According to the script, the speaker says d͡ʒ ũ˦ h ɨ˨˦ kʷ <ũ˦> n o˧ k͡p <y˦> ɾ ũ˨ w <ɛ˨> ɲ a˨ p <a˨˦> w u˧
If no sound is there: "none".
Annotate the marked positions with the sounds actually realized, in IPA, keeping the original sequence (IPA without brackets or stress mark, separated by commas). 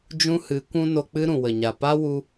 ũ˦, ɨ˦, ə˨, a˦